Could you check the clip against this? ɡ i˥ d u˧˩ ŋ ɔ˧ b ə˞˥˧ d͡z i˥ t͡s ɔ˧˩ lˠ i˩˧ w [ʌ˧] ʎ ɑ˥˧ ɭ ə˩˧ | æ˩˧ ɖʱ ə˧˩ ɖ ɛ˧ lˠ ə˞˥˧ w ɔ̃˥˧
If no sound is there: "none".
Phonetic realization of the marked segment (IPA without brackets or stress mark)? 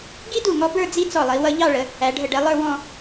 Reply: ʌ˧